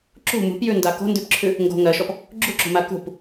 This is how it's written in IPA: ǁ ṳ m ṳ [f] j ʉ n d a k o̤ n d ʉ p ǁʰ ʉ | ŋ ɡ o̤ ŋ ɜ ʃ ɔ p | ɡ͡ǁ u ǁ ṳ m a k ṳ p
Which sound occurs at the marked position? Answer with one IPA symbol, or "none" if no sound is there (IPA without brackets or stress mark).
p